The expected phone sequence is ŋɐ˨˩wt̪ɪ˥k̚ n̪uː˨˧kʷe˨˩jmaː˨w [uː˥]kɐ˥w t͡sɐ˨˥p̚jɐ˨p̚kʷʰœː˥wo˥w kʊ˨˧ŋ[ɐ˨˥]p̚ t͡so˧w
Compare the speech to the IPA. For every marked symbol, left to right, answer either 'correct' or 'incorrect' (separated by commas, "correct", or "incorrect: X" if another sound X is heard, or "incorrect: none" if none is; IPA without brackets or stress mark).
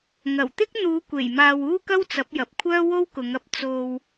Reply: correct, correct